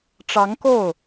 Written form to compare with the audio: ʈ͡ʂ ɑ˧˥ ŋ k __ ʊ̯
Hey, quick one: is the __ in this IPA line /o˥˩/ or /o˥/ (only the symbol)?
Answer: o˥˩